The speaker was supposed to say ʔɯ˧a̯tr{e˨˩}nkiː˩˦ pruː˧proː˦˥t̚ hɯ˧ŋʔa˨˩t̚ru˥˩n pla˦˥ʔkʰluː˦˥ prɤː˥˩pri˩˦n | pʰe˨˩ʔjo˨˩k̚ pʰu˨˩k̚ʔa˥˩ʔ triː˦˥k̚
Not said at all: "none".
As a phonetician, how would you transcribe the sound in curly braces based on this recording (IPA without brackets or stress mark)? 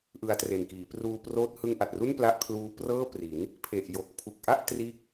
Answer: e˨˩